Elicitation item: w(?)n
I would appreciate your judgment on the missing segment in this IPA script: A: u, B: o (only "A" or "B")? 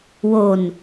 B